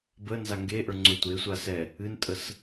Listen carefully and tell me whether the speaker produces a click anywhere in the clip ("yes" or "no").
yes